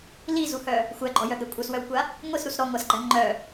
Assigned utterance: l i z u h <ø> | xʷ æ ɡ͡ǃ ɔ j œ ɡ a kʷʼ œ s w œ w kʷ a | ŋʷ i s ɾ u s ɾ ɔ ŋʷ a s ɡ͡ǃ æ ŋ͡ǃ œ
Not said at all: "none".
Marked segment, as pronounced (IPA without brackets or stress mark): œ